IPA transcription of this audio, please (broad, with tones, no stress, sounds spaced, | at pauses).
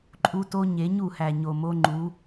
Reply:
ǃʼ u˦ t o˦ ɲ e˨˦ ɲ u˦˨ h æ˨ ɲ o˨ m o˦ ŋ͡ǃ u˨˦